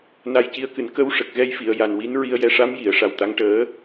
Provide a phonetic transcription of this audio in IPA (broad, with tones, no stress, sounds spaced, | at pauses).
n a˧ j c i˧˥ ə̯ k ɨ˨˩˨ n k ə˧ w ʂ ə˨˩ k̚ ɣ ɛ˧ j f i˨˩˨ ə̯ j a˨˩ n w i˧˥ n ɹ i˧ ə̯ j ɛ˧˥ ʂ a˧˥ m j i˨˩˨ ə̯ ʂ a˨˩ w t̪ a˧˥ ŋ ʈ əː˧˥